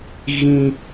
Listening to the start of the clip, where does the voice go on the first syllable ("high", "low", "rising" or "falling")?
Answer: high